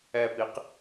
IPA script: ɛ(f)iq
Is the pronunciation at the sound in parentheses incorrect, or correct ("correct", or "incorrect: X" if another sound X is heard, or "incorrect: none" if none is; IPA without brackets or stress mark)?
incorrect: p